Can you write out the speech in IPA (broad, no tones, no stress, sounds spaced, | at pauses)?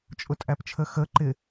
t͡ʃʼ ʊ tʼ æ p t͡ʃʰ ə x ə ǃ ɪ